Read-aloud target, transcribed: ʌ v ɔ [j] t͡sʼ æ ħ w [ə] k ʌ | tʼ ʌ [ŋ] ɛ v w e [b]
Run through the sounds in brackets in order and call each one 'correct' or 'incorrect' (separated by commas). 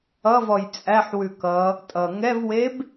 correct, incorrect, correct, correct